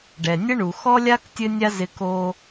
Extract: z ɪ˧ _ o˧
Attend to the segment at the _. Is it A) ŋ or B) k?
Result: B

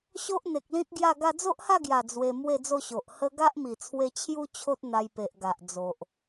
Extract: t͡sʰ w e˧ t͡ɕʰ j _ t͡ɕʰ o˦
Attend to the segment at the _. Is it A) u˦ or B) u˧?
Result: A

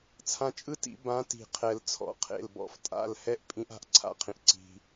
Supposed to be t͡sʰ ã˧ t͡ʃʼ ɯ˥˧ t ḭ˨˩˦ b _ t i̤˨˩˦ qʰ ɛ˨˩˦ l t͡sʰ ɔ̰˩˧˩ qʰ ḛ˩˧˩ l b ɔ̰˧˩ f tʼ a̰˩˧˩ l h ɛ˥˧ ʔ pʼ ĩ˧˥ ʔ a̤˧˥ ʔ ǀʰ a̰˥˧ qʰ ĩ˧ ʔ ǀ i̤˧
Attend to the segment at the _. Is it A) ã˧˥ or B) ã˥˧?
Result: A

